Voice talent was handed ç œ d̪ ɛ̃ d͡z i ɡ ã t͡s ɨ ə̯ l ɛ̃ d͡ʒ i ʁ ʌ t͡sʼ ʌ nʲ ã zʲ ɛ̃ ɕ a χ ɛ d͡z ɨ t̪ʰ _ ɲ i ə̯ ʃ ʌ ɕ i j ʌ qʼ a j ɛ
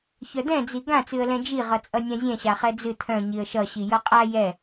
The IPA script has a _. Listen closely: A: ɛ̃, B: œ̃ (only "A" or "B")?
B